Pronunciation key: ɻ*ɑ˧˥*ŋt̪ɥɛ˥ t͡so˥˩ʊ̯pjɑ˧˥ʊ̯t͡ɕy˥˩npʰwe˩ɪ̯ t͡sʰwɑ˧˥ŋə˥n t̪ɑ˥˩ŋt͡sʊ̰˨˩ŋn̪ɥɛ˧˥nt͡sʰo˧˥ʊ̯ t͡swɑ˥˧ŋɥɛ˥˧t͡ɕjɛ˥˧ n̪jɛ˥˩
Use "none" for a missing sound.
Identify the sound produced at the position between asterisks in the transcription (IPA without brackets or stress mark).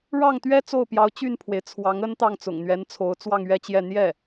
ɑ˥˩